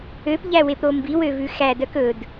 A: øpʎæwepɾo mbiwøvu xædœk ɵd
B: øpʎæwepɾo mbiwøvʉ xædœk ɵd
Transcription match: B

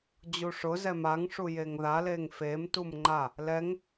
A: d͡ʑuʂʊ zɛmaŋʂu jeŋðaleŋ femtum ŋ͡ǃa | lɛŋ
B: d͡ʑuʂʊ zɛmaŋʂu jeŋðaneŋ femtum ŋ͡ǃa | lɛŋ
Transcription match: A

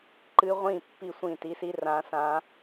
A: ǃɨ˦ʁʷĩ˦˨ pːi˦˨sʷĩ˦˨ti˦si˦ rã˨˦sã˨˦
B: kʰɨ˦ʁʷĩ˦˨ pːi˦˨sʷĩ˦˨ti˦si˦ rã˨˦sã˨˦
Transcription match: A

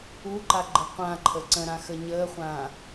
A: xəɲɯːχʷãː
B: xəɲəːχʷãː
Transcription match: B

